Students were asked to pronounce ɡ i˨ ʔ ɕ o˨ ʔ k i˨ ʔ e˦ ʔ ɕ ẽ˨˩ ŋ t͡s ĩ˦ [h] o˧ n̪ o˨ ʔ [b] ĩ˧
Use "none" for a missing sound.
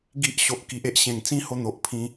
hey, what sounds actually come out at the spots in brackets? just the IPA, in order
h, pʰ

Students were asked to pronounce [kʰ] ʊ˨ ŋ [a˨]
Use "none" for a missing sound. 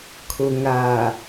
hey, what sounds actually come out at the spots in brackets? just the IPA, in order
kʰ, a˨

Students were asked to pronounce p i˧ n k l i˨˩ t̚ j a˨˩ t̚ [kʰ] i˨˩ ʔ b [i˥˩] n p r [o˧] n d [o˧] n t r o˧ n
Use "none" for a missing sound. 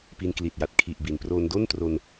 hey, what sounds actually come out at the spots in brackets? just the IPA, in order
kʰ, i˩˦, o˧, o˥˩

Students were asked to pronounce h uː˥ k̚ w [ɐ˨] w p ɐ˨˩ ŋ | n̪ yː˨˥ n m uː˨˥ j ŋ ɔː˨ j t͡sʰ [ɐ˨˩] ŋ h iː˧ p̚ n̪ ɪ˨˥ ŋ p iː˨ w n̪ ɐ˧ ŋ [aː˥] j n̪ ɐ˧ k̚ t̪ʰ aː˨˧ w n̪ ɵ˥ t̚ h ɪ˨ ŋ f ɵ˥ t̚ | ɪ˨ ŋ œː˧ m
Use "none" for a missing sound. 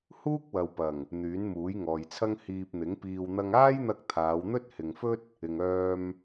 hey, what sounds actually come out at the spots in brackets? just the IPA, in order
ɐ˨, ɐ˥, aː˥

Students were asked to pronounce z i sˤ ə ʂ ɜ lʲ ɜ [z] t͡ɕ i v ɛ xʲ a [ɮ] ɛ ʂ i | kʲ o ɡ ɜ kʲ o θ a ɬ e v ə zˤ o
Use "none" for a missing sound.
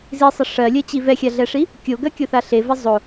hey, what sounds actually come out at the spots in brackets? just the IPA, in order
none, ɮ

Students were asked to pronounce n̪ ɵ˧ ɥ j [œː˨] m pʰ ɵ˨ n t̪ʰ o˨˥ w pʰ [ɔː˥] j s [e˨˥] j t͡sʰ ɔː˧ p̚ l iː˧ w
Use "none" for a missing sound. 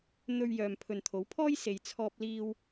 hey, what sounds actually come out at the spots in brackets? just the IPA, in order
œː˨, ɔː˥, e˨

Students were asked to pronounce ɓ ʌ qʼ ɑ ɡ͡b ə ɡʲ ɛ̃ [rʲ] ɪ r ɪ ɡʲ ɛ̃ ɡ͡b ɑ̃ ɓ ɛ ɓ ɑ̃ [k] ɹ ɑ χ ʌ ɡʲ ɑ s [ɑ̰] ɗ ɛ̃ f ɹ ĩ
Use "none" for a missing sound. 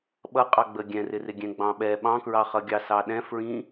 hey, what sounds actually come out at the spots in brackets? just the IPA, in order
r, k, ɑ

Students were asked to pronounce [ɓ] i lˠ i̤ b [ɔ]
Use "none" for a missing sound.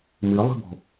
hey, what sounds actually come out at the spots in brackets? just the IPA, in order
m, ɔ̤

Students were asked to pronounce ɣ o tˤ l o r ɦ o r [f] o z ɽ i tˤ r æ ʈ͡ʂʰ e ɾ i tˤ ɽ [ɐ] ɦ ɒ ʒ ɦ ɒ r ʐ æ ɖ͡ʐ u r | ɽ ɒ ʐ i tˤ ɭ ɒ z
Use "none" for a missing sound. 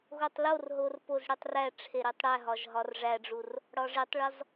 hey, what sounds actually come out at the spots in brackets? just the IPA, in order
p, æ

